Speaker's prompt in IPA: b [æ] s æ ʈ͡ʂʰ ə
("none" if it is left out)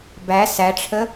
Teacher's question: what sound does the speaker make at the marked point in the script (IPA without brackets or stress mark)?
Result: æ